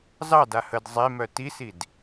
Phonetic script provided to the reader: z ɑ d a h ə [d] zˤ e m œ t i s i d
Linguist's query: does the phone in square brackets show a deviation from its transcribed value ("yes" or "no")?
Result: no